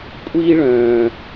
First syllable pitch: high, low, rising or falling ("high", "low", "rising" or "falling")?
high